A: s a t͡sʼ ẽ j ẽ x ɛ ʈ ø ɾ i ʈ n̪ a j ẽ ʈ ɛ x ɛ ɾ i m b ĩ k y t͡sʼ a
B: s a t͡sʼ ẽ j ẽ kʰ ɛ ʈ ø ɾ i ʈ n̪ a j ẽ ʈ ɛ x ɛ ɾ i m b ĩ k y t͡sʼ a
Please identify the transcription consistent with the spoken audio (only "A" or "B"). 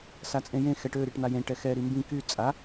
A